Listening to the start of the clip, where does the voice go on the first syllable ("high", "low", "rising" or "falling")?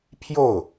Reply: falling